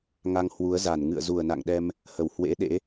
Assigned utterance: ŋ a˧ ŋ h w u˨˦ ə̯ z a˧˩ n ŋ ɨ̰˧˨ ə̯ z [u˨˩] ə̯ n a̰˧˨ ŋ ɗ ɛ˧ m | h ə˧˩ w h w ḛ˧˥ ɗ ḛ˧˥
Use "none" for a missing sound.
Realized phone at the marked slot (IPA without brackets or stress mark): u˨˩